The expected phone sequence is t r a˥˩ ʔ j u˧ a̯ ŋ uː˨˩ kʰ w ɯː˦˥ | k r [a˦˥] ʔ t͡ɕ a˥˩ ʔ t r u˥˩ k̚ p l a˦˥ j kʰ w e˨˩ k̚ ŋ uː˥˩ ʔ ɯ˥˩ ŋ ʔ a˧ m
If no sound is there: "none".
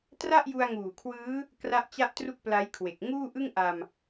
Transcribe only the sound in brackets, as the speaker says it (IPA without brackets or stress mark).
a˦˥